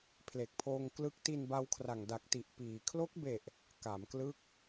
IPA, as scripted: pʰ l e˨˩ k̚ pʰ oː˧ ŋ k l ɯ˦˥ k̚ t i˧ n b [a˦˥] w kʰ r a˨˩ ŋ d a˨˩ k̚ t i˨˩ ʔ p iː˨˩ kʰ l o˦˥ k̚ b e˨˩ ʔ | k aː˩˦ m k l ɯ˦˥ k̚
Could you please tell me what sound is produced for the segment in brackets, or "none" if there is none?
a˦˥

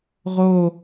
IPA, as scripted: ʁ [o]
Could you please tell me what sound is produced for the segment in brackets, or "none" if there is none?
o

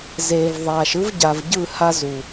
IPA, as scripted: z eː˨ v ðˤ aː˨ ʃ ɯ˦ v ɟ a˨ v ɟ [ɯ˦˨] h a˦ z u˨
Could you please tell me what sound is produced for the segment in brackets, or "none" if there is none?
ɯ˦˨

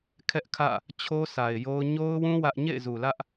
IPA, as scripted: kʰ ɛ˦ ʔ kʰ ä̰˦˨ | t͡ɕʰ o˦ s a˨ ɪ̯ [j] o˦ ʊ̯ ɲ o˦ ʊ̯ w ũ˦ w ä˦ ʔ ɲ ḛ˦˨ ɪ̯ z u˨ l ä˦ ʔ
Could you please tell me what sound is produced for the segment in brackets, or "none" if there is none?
j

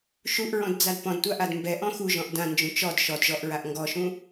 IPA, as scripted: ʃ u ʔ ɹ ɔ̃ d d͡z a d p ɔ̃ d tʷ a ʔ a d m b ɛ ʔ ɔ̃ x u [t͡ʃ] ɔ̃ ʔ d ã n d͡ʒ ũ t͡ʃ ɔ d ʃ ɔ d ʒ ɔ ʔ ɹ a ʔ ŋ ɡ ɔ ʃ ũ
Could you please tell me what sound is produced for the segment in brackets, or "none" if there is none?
ʒ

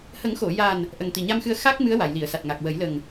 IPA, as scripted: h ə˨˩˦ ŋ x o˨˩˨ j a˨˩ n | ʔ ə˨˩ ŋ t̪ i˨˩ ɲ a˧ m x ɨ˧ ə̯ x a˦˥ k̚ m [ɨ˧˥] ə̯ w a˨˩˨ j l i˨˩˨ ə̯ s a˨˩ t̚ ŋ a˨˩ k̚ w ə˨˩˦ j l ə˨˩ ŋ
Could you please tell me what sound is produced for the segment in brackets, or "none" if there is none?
ɨ˧˥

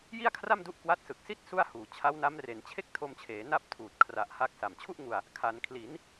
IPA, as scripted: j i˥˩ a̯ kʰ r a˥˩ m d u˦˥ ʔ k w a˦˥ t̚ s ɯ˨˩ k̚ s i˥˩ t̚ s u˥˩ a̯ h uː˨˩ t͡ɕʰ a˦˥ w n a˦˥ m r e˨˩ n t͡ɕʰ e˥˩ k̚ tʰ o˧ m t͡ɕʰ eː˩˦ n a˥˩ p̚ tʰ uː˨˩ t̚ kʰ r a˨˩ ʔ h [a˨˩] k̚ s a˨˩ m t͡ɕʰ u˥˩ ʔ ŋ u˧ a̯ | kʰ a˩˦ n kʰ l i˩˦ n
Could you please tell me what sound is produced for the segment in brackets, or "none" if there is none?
a˦˥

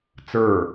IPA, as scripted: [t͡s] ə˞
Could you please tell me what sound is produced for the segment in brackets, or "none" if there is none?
t͡s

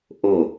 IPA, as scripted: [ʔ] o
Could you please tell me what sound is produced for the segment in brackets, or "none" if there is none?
ʔ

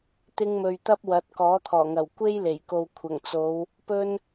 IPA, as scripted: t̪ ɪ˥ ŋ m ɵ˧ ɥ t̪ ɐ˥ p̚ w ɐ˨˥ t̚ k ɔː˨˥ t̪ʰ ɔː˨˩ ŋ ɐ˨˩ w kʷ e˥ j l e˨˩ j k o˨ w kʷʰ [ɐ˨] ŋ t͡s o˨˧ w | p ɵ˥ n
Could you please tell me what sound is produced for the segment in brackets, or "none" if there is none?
ɐ˨˩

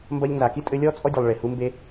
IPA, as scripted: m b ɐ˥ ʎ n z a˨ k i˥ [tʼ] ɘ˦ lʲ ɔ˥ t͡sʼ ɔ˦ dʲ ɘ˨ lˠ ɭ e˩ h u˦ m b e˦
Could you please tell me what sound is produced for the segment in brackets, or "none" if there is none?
tʼ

